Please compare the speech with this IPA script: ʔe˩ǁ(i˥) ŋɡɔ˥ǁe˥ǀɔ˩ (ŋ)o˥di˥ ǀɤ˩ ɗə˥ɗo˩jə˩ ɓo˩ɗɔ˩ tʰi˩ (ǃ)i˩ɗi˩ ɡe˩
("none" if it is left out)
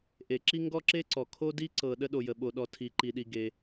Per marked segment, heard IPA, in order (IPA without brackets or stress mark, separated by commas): i˥, kʰ, ǃ